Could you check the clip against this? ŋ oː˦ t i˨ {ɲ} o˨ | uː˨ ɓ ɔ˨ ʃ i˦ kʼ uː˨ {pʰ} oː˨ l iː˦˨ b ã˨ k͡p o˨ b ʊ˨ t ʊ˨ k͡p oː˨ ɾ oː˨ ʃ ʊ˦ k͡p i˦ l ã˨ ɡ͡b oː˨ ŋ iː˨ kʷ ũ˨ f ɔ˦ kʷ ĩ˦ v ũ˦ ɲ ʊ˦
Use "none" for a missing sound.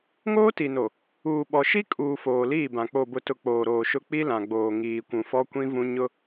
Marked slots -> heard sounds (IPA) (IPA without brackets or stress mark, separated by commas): n, f